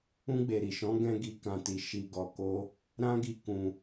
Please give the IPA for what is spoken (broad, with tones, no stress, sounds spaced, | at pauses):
ũ˧ ɡ͡b e˨ ɾ i˨ ʃ ɔ̃˨˦ ɡ ɛ̃˦ ɡ i˧ k ã˨ t i˨ ʃ i˨ ɡ ɔ˨ k o˧ | ɾ ã˦ ɡ i˧ k ũ˧